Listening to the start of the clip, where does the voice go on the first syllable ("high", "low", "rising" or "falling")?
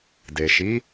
low